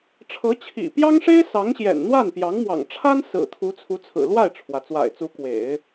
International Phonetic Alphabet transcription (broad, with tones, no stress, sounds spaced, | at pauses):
ʈ͡ʂʰ ɤ˧˥ t͡ɕʰ ḭ˨˩ p j ɑ˥ ŋ ʂ e˥ ɪ̯ s ɑ˧˥ ŋ ɕ j ɛ̰˨˩ n n̪ w a˥˩ n p j ɑ˧˥ ŋ m w ɑ̰˨˩ ŋ ʈ͡ʂʰ a˥ n s ɹ̩˨˩ t̪ʰ u˧˥ t͡sʰ u˧˥ t͡sʰ ɹ̩˨˩ l w a˥˩ ɪ̯ ʈ͡ʂʰ w ä˩ t͡s w a̰˨˩ ɪ̯ t͡s u˧˥ k w ḛ˨˩˦ ɪ̯